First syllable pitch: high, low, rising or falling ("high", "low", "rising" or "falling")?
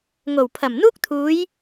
low